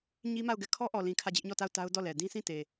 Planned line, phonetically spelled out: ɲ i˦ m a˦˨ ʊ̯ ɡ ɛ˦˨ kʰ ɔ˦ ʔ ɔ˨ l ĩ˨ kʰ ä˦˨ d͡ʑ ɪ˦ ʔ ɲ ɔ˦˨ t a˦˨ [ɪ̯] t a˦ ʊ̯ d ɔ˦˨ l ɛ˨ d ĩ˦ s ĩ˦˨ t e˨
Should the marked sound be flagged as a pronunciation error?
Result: yes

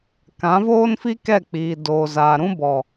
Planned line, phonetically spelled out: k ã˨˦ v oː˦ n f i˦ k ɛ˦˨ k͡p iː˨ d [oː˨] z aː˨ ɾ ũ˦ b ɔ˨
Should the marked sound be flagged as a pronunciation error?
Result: no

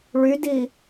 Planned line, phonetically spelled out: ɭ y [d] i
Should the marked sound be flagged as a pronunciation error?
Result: no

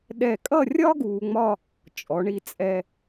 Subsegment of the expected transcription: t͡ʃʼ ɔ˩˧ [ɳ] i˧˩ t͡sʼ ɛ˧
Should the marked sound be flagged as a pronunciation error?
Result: no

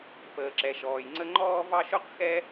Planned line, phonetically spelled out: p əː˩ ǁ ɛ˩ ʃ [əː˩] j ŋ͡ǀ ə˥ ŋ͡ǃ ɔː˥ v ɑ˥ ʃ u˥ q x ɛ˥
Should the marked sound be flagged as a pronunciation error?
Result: yes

